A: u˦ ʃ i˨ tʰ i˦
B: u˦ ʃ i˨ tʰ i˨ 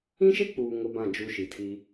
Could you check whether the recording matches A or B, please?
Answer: A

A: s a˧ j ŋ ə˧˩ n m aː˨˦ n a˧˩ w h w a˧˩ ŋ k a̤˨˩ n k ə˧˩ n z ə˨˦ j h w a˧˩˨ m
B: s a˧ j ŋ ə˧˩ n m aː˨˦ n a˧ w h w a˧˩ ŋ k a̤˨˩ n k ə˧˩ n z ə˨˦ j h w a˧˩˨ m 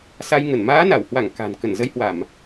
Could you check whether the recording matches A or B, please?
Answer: A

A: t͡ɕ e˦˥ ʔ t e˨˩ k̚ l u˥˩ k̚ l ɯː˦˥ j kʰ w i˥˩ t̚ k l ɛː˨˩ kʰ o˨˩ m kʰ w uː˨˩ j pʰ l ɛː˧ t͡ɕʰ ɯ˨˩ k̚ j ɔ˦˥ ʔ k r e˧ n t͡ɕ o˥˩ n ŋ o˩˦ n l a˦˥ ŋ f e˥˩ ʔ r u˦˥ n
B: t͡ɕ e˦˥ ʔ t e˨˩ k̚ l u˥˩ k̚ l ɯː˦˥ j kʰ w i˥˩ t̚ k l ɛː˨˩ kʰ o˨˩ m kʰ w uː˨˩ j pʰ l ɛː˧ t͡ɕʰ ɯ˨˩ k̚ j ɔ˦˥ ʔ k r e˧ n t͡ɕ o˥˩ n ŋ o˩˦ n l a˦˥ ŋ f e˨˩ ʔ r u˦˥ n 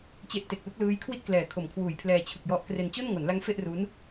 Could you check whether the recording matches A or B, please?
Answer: A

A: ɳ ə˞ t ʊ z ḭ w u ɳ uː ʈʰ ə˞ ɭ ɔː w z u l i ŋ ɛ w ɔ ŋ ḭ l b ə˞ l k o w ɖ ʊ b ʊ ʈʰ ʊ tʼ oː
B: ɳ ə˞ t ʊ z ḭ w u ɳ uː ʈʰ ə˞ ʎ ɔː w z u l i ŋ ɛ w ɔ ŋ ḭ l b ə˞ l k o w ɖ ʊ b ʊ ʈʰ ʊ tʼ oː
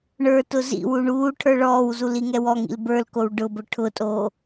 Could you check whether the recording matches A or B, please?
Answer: A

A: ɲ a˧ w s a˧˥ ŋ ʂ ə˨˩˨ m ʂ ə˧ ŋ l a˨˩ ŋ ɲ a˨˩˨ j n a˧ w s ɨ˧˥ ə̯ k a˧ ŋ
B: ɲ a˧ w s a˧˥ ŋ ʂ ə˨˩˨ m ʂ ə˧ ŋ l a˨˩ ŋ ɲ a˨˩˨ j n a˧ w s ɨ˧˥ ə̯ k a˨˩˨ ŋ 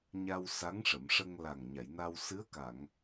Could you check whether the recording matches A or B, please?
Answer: B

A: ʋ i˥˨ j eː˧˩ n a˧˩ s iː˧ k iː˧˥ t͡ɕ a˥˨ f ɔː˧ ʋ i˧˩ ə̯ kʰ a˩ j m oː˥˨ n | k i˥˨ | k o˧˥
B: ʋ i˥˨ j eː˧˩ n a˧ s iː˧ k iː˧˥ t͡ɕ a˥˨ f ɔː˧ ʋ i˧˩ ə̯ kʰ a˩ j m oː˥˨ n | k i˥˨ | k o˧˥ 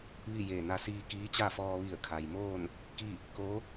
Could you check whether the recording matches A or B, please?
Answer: B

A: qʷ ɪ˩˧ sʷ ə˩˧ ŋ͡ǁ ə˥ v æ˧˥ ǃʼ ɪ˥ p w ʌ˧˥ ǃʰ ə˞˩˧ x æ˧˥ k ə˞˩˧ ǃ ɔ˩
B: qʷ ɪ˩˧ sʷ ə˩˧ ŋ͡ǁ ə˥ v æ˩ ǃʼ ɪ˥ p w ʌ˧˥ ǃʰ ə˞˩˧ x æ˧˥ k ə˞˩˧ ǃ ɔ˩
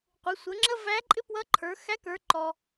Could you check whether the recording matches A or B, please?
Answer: A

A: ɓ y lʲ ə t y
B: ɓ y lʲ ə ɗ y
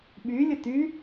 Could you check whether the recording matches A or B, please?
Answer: A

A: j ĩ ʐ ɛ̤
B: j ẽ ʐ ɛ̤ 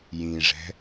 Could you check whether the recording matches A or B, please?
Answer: A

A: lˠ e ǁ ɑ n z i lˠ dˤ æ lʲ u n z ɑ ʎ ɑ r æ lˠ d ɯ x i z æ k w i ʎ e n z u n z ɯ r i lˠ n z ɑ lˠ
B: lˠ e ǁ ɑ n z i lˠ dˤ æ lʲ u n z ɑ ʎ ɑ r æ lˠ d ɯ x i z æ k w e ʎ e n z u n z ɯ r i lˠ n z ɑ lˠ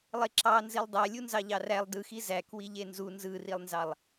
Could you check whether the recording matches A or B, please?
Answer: A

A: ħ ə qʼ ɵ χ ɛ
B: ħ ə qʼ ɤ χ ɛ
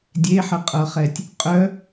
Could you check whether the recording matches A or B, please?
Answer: B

